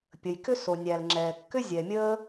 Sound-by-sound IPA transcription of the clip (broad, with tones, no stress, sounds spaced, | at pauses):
pʲ ə˩ j k ʏ˥ s o˩ nʲ æ˩ l ŋ͡ǁ ɛː˩ kː ʏ˥ zʲ ɛ˩ mʲ əː˥